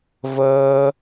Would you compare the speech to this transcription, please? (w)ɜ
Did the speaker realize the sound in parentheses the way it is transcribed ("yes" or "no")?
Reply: no